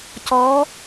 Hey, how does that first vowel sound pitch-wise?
rising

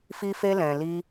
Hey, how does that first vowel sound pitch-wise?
high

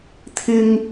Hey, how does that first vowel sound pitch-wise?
high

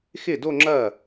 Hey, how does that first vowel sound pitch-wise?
falling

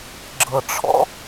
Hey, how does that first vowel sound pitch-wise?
low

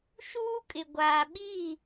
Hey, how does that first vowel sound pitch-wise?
high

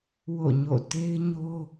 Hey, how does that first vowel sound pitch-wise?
falling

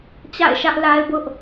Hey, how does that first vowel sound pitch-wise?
falling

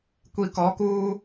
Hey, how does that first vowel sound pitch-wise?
low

